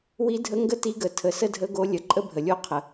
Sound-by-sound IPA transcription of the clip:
w i˧˥ dʱ ə˧˥ ŋ ɡ ə˥ t i˧˥ ɡ ə˩˧ tʰ ə˩˧ s ə˥ dʱ ə˧˥ ɡ o˧˥ lʲ ə˩˧ ǃʼ ə˥ bʱ ə˩ lʲ o˦˨ qʰ ə˩

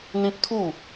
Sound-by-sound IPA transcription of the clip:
n̪ ĩ˦ p̚ t̪ʰ u˥˧

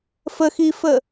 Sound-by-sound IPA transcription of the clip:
f ə x i f ə

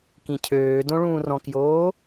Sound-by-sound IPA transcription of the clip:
k ĩ cʰ øː d õ ɭ ũː r ɔ̃ k j oː

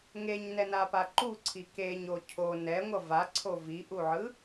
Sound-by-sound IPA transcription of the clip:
ŋ e ɲ n ɛ n a p a ǃ u ǀʰ i k e ɲ o cʰ o n ɛ ŋʷ ʌ v a ǀʰ o v i ʔ u ʕ ɯ

